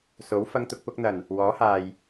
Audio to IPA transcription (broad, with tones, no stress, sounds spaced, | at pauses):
s o˨˥ w f ɐ˧ ŋ t̪ ʊ˧ k̚ p ʊ˧ k̚ n̪ ɐ˨˩ n | w ɔː˨˥ h aː˨ j